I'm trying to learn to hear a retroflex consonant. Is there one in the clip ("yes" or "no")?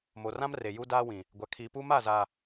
no